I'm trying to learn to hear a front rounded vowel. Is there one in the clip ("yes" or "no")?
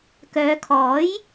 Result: yes